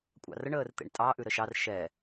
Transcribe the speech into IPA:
kʷʼ ɑ̰ r ə ɳ əː r t̪ ḛ ɳ tʼ ɑ ʔ ʉ ɾ ə ʃ ɑ r ʃ ɛ

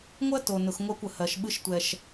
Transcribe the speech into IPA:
ŋʷ ɜ˦ t o˨ n ʊ˨ x ŋʷ ɜ˦ kʷ ə˨ h ɜ˨ ʃ ɓ ɨ˦ ʃ tʷ ɛ˨ ʃ

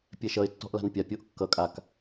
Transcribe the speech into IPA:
pʲ ɛ ʃ ʌ ɪ̯ tː ɔ̤ ʔ l a̤ n pʲ a pʲ o ʔ kː ʌ kʼ a k

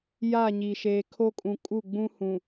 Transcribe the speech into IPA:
j a˦˨ ɲ i˨ ʃ eː˨ kʰ o˦ kʼ ũ˨ kʼ u˦˨ ɡ͡b ũ˦ h ũ˨

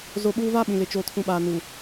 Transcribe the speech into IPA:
z o˦ ɓ uː˦ v aː˦ ɓ ĩ˨ l ɪ˨ t͡ʃ o˨ tʰ ũ˨ ɓ aː˨ n u˨

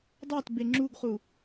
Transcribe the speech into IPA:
dˤ a t b e ŋ͡ǁ u ɡ χ u

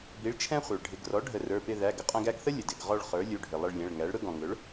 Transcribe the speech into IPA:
b i˩˥ ɭ t͡ʃʰ ɛ̃˦ χʷ ə˞˩ ɭ ɖʱ ɪ˩˧˩ ɡ r ɔ˩˥ ɖʱ ə˨˩˦ r ə˞˩˧˩ p ɪ˦˨ ð æ˩˧˩ ɡ ə˦ qʼ ɛ̃˦ ɡ æ˦˨ ɡ θ ə˦ lʲ ə˩ d ɪ˩˧˩ ɡ ʁ ɔ˦˨ ɭ χ ə˞˩˥ lʲ u˩˧˩ ɖʱ ɪ˩ lˠ ə˦˨ ɭ lʲ ɛ̃˩˧˩ ɭ ŋ æ˩˥ ɭ ɾ ʊ˦ ɡ ɔ̃˩ ŋ ʊ˩˥ ɭ

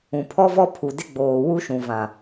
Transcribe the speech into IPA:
ũ˨ pʰ ɔ˦ v ɔ˦ pʰ u˨ d ɪ˦ ɡ͡b oː˨ w u˦ ʃ ũ˨ v ã˨

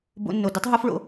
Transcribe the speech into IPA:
b o̰˧ nː o˨ d o˦ tˤ ɦ o˦ f ɭ o̰˧

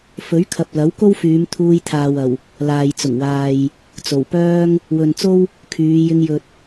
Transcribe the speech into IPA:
f ɵ˨˥ ɥ kʰ ɐ˨ p̚ l ɐ˨˥ w k o˥ w f yː˨˧ m t̪ʰ uː˧ j t̪ʰ aː˨ w ɐ˨˩ w | l aː˨ j t͡s ʊ˨˩ ŋ w aː˨ j | t͡s o˨˩ w p œː˥ ŋ | w ɵ˨ n t͡s o˥ w | kʰ yː˨˧ j ɪ˧ ŋ j ɵ˨ t̚

